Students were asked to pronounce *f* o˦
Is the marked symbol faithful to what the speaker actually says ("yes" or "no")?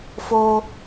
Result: yes